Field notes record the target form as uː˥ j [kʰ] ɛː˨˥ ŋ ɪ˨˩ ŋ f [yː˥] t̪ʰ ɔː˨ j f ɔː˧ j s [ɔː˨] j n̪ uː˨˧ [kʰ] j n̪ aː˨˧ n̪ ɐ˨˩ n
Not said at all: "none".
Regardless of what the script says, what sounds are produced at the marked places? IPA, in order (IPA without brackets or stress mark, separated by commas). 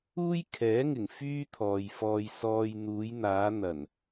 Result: kʰ, yː˥, ɔː˨, none